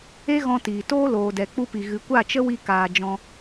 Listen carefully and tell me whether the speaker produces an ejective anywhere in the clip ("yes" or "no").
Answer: no